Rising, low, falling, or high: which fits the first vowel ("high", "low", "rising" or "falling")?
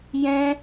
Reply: high